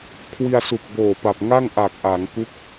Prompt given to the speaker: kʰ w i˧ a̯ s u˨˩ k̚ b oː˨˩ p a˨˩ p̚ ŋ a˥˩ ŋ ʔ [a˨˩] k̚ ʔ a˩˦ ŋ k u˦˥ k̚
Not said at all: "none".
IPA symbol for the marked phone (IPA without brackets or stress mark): a˨˩